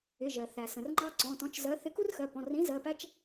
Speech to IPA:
ɪ˩˧˩ ʒ ɜ˩ θ æ˩ s ə̃˩ r ŋ͡ǃ ɑ˦ ǀ ɔ̃˩˧˩ t ɔ̃˨˥ t͡ʃ z ɜ˨˥ θ ɪ˨˥ k u˦ r x ɜ˩˧˩ p ɔ̃˩˧˩ r ĩ˨˥ z ɜ˩˧˩ p æ˦ t͡ʃ

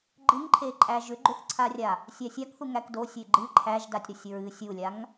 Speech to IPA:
ɡ͡ǃ ɨ ŋ ǃʰ e ǃʼ æ ʒ ʏ ɡ͡ǃ ʏ θ ǀʰ a rʲ a | sʲ æ sʲ a k θ u ŋ æ k d o sʲ e ɡ͡ǃ ɨ ǃʰ æ ʒ d a tʲ ɾ u sʲ ɹ ɨ sʲ u lʲ a ŋ

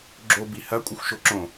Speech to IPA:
ɡ͡ǁ o b i h ɐ kʷʼ ɘ xʷ ʃ o ǁ õ

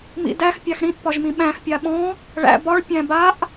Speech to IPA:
m ḭ d æ x pʲ a x ɽ ĩ ʔ p ɒ ʒ m ĩ ɓ æ̃ x pʲ a ɓ ɔ̃ | ɭ æ̰ b ɒ ɭ pʲ æ̃ b a ʔ

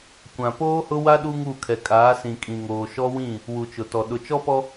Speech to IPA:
kʷ ã˨ p oː˦ h ʊ˦ w a˦ ɗ u˦ ŋ u˦˨ kʰ ɛ˨ kʼ aː˨˦ s ĩ˨ kʼ ĩ˨ ŋ oː˨ ʃ ɔ˦ w ĩ˦˨ | w u˨ t͡ʃ ʊ˨ t ɔ˨ ɗ ʊ˨ t͡ʃ ɔ˦ p ɔ˦

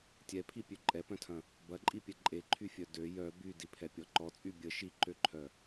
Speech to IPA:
tʲ ɛ pʰ i pʲ ø ǃʼ ɛ p œ̃ tʰ ɐ̃ | b ɐ ǃʼ i pʲ ɛ ǃʼ e ǃʰ y fʲ œ d ø j œ b y d i pʰ ɛ pʲ ɔ ǃ ɔ t͡sʼ y bʲ ə ʃ i ǃ ø ǃʰ œ

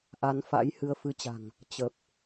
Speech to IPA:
ʔ a˨˦ n f a̰˧˥ j h ɨ˧ ə̯ f ɨ˨˦ t͡ɕ a̤˨˩ ŋ | t͡ɕ ə˨˩ p̚

